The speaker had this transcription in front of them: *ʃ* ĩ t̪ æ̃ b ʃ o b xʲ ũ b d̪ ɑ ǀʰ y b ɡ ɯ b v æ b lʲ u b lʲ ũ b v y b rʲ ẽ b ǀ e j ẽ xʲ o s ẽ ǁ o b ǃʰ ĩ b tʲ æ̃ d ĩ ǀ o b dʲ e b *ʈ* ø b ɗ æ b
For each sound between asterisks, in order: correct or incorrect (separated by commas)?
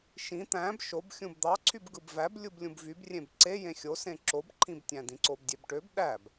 correct, correct